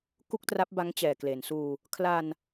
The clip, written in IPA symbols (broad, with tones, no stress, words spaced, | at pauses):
ku˥˩k̚tra˦˥p̚ba˦˥ŋ t͡ɕɛː˨˩kle˩˦nsuː˧ | kʰla˧n